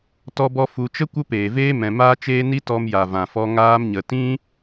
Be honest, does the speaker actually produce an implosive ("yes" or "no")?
no